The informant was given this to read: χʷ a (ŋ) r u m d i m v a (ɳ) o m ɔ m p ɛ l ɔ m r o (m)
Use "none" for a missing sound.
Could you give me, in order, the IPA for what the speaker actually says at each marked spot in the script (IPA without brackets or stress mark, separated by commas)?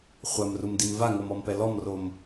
m, ŋ, m